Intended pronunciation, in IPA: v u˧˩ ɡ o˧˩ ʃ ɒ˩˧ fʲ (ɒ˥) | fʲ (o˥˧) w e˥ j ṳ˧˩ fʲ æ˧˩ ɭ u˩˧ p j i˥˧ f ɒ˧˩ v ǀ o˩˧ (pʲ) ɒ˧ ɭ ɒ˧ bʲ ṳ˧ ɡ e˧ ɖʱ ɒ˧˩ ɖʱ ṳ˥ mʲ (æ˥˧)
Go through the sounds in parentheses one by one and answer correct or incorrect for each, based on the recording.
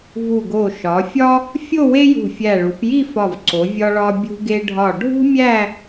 correct, correct, incorrect: vʲ, correct

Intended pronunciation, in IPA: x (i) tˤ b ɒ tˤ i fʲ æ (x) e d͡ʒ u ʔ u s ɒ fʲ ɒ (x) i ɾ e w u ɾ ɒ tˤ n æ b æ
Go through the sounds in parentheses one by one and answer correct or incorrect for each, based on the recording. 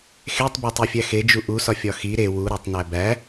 incorrect: e, correct, correct

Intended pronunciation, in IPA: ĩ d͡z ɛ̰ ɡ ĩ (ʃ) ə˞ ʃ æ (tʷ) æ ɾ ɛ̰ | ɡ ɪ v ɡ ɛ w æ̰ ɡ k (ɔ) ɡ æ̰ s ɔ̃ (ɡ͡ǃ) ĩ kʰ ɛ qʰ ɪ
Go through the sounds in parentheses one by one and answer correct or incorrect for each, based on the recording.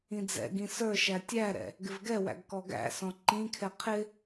incorrect: s, incorrect: tʲ, correct, incorrect: ǃ

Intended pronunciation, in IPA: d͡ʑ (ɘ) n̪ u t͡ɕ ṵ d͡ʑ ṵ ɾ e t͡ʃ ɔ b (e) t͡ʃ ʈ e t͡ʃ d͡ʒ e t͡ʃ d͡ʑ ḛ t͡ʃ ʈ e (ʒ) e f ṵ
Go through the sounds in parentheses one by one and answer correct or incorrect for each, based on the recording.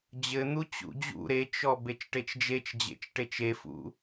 correct, correct, incorrect: t͡ʃ

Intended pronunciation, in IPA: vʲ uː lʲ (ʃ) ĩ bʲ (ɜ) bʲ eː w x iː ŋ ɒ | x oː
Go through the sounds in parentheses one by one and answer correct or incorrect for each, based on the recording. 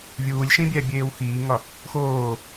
correct, incorrect: æ

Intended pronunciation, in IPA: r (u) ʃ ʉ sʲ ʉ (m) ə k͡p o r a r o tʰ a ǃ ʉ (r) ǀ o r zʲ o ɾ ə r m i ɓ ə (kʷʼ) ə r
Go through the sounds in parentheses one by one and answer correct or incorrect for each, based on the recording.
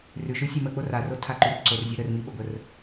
incorrect: ʉ, correct, correct, incorrect: ɡʷ

